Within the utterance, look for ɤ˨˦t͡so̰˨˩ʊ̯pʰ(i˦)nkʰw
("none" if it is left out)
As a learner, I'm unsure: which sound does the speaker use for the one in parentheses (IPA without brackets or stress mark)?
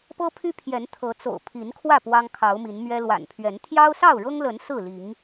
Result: i˨˦